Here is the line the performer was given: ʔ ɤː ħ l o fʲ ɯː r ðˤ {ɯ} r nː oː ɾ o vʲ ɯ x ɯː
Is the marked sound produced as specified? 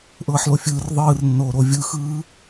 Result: no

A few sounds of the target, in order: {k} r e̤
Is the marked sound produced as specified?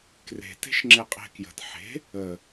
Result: yes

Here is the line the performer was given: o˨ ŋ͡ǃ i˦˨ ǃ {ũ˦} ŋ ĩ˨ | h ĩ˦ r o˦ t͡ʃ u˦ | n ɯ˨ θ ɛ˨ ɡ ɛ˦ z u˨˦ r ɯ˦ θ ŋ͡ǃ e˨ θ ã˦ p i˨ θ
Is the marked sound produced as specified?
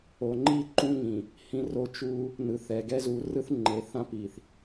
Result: yes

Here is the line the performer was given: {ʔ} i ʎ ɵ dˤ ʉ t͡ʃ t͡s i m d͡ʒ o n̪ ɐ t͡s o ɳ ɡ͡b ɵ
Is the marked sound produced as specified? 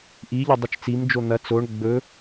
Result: yes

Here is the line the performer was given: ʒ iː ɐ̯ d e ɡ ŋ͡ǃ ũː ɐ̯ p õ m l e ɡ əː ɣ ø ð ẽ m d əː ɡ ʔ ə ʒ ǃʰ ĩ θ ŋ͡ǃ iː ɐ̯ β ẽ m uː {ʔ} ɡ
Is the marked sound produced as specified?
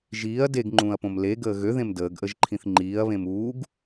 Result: no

